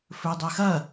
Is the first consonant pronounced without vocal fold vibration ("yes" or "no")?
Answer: yes